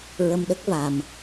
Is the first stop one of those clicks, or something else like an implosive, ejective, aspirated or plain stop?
implosive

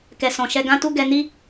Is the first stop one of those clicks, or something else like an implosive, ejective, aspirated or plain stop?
plain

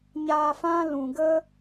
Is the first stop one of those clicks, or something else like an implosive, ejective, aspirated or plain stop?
plain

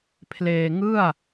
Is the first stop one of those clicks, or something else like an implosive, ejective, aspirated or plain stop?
aspirated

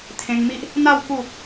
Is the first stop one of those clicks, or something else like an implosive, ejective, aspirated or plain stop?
aspirated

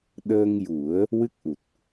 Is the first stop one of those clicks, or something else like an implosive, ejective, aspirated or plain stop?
implosive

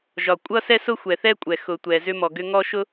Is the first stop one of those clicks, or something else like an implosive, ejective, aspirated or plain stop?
ejective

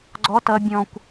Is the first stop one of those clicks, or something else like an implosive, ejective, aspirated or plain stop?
click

